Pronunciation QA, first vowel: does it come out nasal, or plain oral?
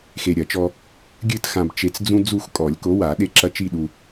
oral